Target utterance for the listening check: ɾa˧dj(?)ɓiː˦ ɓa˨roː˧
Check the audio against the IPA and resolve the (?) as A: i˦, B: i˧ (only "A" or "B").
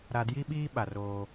A